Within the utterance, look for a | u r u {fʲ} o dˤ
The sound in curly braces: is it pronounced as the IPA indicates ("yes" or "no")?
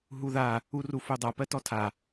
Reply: no